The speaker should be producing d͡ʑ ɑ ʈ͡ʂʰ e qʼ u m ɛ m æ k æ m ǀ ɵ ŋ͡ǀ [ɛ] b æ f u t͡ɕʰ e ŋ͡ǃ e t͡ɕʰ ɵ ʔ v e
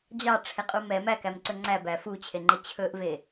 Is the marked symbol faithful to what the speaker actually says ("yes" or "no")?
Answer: no